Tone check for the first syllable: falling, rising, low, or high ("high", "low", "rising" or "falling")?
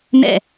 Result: falling